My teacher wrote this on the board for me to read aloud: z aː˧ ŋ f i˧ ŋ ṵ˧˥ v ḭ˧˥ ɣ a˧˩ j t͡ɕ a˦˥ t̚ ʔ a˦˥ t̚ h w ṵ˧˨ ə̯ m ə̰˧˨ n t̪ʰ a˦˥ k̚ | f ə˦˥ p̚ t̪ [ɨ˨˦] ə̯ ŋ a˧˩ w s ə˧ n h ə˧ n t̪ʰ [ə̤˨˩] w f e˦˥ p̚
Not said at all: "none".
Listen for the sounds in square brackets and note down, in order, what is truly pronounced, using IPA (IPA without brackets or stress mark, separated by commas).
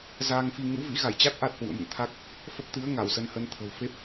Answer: ɨ˨˦, ə̤˨˩